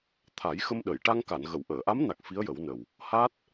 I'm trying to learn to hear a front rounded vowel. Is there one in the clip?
no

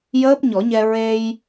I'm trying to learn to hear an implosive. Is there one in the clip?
no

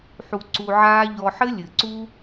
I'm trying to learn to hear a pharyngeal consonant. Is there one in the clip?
yes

